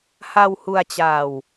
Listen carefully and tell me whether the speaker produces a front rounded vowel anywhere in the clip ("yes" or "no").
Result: no